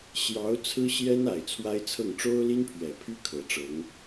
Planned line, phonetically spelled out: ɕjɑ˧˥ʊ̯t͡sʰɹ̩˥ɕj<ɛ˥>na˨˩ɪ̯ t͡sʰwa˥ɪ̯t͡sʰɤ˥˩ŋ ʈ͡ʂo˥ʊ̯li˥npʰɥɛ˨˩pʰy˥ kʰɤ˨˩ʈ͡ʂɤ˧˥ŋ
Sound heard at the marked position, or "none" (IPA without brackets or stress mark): ɛ˥